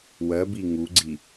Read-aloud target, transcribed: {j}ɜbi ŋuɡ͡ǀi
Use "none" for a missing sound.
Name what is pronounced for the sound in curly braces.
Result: w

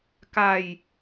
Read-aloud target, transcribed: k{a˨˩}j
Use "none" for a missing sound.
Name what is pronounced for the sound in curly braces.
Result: a˥˧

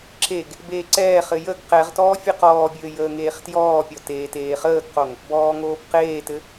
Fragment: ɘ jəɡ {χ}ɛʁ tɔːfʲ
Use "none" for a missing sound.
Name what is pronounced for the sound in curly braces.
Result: q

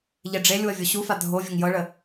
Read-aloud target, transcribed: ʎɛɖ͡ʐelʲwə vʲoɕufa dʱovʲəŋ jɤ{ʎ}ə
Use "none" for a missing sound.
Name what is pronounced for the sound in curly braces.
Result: ɭ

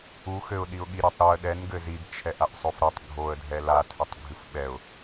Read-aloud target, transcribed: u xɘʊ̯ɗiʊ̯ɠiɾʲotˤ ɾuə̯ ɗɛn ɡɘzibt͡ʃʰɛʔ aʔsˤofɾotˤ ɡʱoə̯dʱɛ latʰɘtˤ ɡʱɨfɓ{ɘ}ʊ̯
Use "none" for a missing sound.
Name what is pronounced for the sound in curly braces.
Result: ɛ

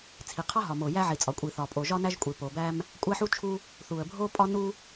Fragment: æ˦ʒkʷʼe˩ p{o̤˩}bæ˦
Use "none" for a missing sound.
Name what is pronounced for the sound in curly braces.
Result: o˩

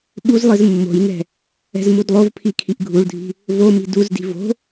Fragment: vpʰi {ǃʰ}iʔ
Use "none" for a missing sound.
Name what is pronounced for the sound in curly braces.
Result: kʰ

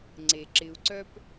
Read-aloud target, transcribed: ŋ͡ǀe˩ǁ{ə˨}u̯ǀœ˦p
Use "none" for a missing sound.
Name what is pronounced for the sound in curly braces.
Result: ɪ˨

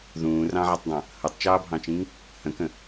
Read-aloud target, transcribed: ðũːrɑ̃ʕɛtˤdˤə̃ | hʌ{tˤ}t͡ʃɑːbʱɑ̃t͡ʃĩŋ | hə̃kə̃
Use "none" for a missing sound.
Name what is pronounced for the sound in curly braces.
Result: tˤ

